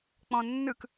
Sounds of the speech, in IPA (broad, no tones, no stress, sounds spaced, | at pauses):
k͡p ɔ̃ nː ɯ k